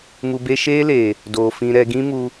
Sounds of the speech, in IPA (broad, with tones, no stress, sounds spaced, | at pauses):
m u˧ b e˦ ʃ eː˦ l eː˨ | d oː˨ f ĩ˧ ɾ ɛ˧ ɡ ĩ˦ m u˧